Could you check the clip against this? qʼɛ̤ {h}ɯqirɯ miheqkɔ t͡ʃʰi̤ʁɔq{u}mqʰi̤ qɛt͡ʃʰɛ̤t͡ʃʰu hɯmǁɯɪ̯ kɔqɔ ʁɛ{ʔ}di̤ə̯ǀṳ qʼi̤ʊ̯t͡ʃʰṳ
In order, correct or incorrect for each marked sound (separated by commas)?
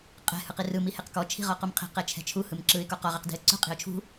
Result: correct, correct, incorrect